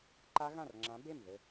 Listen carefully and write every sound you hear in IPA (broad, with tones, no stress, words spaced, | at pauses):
ǃa˦˥ɣã˥˩rŋ͡ǁã˨˥ be˥˩m ðɘ˧˩